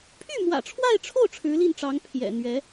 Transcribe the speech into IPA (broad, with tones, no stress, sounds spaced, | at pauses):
pʰ y˥˩ m w ä̰˨˩ ʈ͡ʂʰ w a˥˧ ɪ̯ ʈ͡ʂʰ o˥˩ ʊ̯ ʈ͡ʂʰ ɻ̩˧˥ l i˥˩ n ʈ͡ʂ ɑ˧˥ ŋ pʰ j ɛ̰˨˩ n̪ ɥ ɛ˧˥